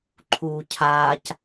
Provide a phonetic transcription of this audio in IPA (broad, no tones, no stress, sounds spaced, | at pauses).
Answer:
ǃʰ uː cʰ aː c